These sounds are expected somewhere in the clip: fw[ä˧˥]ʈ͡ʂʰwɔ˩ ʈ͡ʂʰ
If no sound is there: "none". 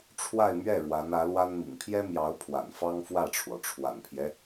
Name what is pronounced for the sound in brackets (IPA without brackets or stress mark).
ä˥˩